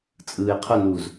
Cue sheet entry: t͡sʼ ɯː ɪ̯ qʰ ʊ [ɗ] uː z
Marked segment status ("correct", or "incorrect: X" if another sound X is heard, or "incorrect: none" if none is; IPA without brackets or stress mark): incorrect: n